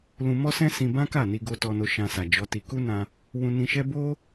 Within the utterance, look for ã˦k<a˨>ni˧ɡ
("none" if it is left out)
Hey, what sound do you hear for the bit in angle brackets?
a˦˨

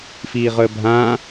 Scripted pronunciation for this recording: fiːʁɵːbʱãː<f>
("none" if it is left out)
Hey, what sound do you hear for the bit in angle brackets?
none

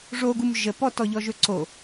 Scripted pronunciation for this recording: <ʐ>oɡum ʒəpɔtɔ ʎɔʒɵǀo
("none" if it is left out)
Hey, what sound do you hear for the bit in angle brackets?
ʐ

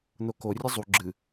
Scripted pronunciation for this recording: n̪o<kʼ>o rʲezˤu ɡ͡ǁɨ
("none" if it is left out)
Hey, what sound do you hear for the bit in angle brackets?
k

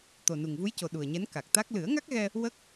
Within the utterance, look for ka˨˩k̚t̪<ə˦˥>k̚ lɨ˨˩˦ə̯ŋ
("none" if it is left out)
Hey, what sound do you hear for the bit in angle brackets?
a˦˥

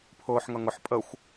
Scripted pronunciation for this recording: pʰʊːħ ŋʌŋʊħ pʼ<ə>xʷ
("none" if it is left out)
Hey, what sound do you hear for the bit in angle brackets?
ə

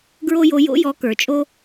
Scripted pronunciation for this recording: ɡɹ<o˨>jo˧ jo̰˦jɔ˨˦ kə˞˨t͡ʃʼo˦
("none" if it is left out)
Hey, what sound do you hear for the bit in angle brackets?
o˦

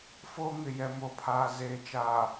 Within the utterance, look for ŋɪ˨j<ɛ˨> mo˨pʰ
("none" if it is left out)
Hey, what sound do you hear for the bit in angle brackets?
ɛ˨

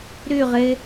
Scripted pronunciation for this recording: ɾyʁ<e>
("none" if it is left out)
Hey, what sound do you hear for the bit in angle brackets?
e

